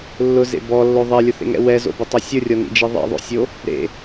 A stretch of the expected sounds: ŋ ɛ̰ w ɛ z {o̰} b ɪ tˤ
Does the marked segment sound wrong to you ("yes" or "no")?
no